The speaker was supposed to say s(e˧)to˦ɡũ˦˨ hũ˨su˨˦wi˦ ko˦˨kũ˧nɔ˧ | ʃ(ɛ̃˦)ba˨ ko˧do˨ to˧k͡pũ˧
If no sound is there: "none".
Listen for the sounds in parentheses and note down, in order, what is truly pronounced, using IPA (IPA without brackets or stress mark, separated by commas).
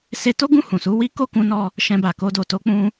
e˧, ɛ̃˧